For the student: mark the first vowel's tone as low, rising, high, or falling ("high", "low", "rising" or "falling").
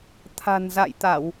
low